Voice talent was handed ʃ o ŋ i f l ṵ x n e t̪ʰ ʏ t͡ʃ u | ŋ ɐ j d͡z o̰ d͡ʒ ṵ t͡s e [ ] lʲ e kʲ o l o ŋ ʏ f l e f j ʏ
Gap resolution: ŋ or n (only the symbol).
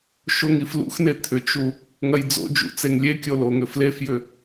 ŋ